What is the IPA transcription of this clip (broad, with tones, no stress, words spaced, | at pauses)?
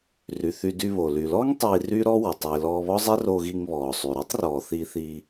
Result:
ry˩ θy˧dy˧βo˩ ly˩lɔː˥ŋ tˤiː˧ ryː˥ɾɔ˥ wə˩ tˤiː˩lɔː˧ βɔ˥zˤɛ˥ ro˧ɣi˧ŋβɔː˩sˤy˩ ɾy˥tˤrɔː˩ θi˧θi˧